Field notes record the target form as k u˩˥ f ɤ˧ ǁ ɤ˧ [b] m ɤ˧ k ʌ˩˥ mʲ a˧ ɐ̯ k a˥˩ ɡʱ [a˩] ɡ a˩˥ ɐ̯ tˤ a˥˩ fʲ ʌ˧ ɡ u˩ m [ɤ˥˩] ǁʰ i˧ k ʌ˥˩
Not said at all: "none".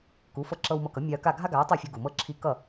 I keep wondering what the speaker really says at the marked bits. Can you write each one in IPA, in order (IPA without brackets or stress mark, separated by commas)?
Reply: w, a˥, ɤ˥˩